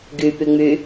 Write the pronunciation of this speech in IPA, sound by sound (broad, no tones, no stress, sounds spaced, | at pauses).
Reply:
ɡ y p y ŋ͡m y